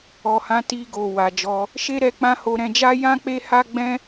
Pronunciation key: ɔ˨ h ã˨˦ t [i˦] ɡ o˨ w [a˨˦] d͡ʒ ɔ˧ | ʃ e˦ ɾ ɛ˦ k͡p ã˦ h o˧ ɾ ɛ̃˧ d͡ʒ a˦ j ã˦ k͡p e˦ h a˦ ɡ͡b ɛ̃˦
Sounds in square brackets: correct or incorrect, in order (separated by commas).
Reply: incorrect, incorrect